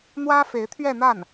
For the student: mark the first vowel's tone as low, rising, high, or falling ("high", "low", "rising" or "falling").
high